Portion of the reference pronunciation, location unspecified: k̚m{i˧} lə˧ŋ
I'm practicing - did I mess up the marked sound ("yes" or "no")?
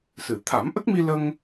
no